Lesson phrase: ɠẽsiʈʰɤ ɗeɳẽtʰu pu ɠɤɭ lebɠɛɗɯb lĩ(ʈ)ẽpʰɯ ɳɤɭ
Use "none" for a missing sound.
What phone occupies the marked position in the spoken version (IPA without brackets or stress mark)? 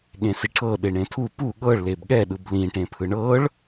ʈ